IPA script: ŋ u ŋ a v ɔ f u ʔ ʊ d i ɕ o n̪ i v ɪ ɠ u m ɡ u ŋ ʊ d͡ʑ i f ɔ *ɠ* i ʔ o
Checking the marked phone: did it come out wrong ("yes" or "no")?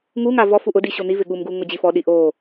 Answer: yes